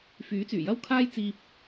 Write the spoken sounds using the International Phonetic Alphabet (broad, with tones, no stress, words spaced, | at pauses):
fyː˨˥t͡syː˨˩jɐ˥w kʰaː˥jt͡siː˧p̚